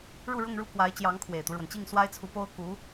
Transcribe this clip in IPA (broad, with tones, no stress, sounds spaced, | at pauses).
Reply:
ɻ u˥˧ ɻ ʊ˥˧ ŋ ɻ u˥˩ k w a˧˥ ɪ̯ t͡ɕ j ɑ˧˥ ŋ kʰ w e˨˩ ɪ̯ t̪ u˦ ɻ w ə˩ n t͡ɕ i˥˩ ŋ s w a˥ ɪ̯ t͡sʰ u˧˥ p o˥ ʊ̯ k u˧˥